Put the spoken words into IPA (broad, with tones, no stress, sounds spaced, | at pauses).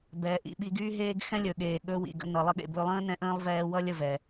b ɛː˨ ʔ ḭ˧ ɓ i˧ ɡ yː˦ ɦ eː˦ ɡ x ɛ̃˦ lʲ ɵ˨ ɠ eː˨ ɠ ɵ˧ w ḭ˨ ɡ ə̰˧ n ʌ˨ lˠ ə˧ ɠ ḛ˨ b ɵ˧ lˠ ə̃ː˦ n ɛ̃˧ ʔ ə̃ː˦ lˠ v ɛː˧ w ʌ˦ lʲ ə˦˨ v ɛ˨